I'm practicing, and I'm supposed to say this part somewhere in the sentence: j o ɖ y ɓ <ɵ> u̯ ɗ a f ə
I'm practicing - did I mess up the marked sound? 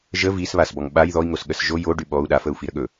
yes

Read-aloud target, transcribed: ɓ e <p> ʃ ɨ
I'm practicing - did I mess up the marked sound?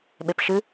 no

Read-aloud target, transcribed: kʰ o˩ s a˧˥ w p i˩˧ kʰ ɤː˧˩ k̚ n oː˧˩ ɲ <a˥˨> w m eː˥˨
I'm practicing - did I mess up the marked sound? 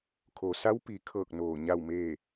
no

